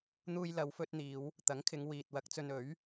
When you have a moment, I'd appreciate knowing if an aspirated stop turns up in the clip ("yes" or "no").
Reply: yes